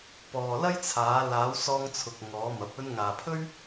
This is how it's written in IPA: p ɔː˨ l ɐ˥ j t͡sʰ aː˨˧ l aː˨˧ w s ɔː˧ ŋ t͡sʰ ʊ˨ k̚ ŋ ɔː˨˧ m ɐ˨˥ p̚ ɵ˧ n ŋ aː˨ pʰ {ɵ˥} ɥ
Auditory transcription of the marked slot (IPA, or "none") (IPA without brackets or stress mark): ɵ˥